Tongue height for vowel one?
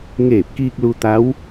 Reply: mid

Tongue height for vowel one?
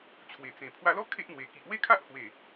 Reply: mid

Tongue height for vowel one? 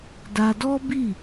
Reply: low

